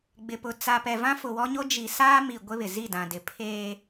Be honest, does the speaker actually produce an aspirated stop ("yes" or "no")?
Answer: yes